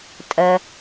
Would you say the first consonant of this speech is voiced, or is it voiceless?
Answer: voiceless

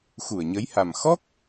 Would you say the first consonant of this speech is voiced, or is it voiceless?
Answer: voiceless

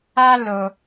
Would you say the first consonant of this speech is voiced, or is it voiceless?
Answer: voiced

